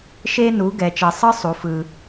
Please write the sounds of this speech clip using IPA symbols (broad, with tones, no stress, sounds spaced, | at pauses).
ʃ e˧ n u˩˧ ɡ ɛ˩˧ t͡ʃ ɛ˧ sˤ ɯ˥ sˤ u˩˧ f ɯ˧